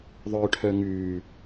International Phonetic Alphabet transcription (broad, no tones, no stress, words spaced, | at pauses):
ðˤœʈʰœ ŋʉː